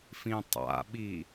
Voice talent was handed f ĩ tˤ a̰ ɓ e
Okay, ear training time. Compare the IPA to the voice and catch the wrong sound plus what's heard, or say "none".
e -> i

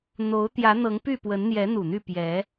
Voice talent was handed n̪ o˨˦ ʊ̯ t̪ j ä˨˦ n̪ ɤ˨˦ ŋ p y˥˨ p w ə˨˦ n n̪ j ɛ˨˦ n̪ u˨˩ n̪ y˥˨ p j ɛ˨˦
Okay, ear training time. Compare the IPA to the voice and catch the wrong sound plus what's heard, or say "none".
none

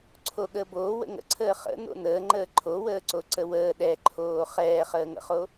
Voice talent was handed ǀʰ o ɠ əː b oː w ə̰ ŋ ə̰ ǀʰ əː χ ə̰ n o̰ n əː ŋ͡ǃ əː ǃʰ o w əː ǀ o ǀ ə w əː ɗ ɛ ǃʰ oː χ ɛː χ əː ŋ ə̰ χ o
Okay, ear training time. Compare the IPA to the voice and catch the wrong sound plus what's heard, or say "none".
none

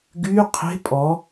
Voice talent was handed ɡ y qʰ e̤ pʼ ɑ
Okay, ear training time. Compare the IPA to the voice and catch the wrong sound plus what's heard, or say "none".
ɑ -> ɔ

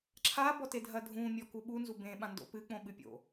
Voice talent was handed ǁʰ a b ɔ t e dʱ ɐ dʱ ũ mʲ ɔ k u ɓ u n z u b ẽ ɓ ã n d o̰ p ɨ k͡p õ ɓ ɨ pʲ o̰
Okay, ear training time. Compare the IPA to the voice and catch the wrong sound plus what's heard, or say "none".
none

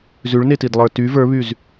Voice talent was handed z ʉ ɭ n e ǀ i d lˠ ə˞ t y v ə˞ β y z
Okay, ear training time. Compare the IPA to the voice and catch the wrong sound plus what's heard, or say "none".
ǀ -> t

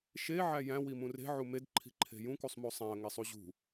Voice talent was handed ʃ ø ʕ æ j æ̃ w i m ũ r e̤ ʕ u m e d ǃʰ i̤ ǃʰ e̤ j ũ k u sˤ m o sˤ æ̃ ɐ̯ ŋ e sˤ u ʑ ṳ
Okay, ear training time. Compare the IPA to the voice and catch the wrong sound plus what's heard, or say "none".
ø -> e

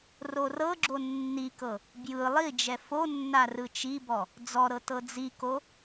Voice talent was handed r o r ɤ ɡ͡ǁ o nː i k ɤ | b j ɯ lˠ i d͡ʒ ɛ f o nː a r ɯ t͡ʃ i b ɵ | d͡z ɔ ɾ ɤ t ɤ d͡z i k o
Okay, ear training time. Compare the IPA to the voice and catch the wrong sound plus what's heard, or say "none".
ɵ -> ɔ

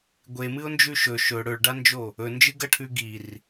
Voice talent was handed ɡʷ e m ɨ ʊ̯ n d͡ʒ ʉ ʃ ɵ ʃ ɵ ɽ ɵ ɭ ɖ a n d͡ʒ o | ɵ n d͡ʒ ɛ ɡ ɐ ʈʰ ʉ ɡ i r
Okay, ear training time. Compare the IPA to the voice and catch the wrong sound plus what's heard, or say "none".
ɛ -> ɨ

